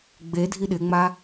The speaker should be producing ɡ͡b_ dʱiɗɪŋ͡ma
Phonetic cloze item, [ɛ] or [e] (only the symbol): e